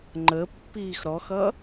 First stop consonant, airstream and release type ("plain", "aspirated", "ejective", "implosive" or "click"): click